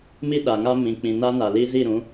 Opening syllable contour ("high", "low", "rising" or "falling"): high